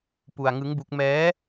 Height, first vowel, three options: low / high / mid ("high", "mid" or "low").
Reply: high